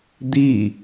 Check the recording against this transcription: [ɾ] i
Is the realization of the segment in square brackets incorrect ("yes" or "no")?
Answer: yes